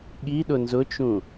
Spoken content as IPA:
ɠ i ɗ ʊ n z ʊ t͡ʃ ũ

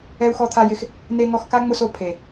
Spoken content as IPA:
ɛ˧ u̯ x ɔ˧ t̪ʰ a˧ j ɪ˧ x | n e˧ ŋ ɔ˧ x k a˦ ŋ͡m ʊ˧ s o˨ pʰ e˨

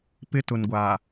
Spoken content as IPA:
p ɪ˦ t ʊ˨ n ɡʷ aː˨

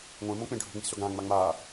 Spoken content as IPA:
ŋʷ ẽ m õ k͡p ẽ ɖʱ ṳ ŋ͡m i̤ s ɵ ɡ ã ŋ͡m a ŋ͡m a

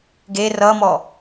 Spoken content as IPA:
ɡ e r ʌ m ɔ

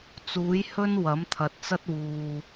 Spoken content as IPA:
t͡s uː˨˥ j h ɵ˥ n w ɐ˨˥ m t̪ʰ ɐ˨ t̚ t͡s ɐ˥ t̚ w uː˨

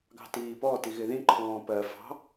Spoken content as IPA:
ɡ ɑ̤ t iː p ɔ t i ɣ ɪ ð ĩ ǃʰ ɔ̃ː p ɜ f ɑ̤

